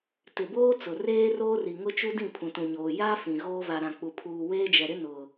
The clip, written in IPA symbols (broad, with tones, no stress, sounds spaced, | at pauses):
t ɪ˨ b oː˦ t͡s ʊ˨ r eː˦ r oː˦ r i˨ ŋ ʊ˦ t͡ʃ u˦ d ĩ˦˨ pʰ ũ˨ t ũ˨ ɲ oː˨ j a˦ f ĩ˨ ɣ oː˦ v a˨ ɾ ã˨ k͡p u˨ pʰ uː˨ w eː˦ d͡ʒ ɛ˨ ɾ ɪ˦ n ʊ˨